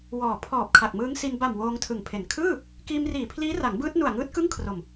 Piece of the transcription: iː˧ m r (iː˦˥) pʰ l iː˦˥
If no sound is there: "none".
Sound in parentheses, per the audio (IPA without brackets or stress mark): iː˨˩